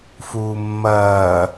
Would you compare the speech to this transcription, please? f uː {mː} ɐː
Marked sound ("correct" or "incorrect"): correct